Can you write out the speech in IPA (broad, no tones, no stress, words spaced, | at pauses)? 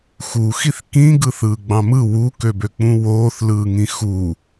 xuxiθ kĩ ɡɯθɯːɡ͡bɑ̃mɯ wukøbøk͡pũ woːθlɯːŋĩ xu